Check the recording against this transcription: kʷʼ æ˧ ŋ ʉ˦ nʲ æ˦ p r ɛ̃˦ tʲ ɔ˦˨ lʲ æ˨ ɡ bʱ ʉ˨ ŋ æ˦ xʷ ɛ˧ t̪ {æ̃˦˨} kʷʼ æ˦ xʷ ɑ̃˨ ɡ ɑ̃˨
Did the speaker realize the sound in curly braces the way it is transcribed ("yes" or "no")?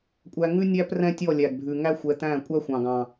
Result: yes